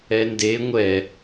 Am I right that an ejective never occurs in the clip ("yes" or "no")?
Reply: yes